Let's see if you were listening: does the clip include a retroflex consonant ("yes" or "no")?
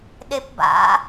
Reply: no